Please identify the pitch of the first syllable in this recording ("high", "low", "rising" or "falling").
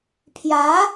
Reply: rising